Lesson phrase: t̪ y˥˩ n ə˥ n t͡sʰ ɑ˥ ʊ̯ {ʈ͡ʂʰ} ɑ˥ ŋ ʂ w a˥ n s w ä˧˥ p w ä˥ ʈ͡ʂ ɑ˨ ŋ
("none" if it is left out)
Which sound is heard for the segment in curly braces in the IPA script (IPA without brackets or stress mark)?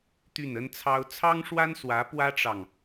t͡sʰ